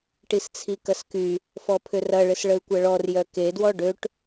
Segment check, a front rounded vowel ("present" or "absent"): present